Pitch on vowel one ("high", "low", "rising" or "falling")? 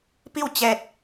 falling